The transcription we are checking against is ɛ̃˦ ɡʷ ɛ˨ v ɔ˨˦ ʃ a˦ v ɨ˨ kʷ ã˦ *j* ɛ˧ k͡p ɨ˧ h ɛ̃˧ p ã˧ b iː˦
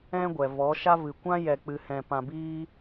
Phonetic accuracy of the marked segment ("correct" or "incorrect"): correct